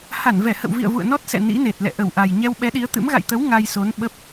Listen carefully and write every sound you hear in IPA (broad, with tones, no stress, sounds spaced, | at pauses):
h a˧˩ n v ɛ˧˩ h ə̰˧˨ w v ḭ˧˨ ə̯ v ṵ˧˨ ə̯ n ɔ˦˥ t̚ s ɛ̰˧˨ n ḭ˧˥ n e˨˩ t̚ l ɛ̰˧˨ ʔ ə˧˩ w ʔ a˨˩ j ɲ ɛ˧ w ɓ ɛ˨˦ ɗ i˨˦ ə̯ t̪ ɨ̰˧˥ m ɣ a̰˧˨ j t̪ ə˨˦ w ŋ a˧ j s o˨˦ n ɓ ə˦˥ p̚